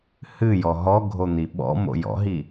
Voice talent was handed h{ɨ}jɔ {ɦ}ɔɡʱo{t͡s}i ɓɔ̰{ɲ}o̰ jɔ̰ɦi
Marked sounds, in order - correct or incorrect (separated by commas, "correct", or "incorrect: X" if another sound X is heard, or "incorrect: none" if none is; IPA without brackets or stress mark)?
correct, correct, incorrect: n̪, incorrect: m